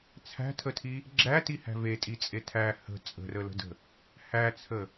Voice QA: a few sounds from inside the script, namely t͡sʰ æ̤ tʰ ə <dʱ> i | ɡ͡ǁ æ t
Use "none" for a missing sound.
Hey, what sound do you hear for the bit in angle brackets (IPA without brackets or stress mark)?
tʰ